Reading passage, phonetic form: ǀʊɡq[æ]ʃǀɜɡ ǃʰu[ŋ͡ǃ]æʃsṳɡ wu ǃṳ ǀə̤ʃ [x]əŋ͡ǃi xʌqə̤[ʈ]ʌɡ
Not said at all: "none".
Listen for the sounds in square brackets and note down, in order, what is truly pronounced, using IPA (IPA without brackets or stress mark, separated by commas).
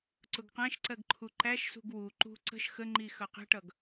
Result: æ̃, ǃ, x, ʈ